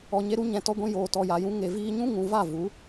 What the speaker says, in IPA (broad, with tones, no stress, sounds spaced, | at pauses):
ɔ˨ ɲ e˧ ɾ u˧ ɲ ɛ̃˨ t ɔ˧ ɡʷ ĩ˧ j oː˨ t ɔ˨ j a˨ j ũ˧ ŋ e˨ v iː˧ ɲ ũ˦ ŋ ũ˨ v a˦˨ v u˨˦